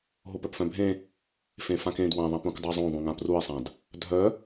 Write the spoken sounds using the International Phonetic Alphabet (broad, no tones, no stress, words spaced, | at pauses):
ɦopœpfœ̃bʱẽ | fẽfãkẽd wãðˤãp ũkdˤazˤõ ðˤũŋãprue̯sˤãd | dʱœ